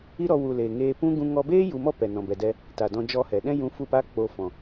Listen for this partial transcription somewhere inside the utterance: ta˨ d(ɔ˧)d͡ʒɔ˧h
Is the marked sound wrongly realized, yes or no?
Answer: yes